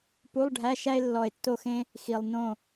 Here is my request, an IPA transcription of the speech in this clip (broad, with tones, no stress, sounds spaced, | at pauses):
p u˧˥˧ lˠ ɖʱ æ˧˥˧ ʃ æ˥ e̯ lː ɔ˧˩ e̯ tː o˥˨ x ẽ˥ | x i˩ lˠ n õ˥˨